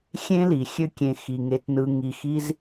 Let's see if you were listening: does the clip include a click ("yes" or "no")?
no